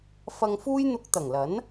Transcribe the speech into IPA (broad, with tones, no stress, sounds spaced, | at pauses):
f ɐ˧ ŋ f uː˥ j n̪ ʊ˧ k̚ t̪ ɐ˨˩ ŋ l ɐ˨˥ n